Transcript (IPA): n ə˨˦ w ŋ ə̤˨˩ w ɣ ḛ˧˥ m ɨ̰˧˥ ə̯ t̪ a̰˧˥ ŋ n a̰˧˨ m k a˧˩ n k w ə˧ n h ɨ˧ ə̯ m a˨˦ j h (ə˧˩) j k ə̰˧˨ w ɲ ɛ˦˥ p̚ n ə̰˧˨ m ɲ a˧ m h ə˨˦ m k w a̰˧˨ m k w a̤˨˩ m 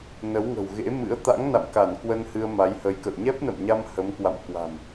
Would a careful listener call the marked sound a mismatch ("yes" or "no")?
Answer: yes